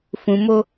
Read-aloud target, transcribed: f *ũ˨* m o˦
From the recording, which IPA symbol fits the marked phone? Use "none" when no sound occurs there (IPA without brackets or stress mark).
ũ˨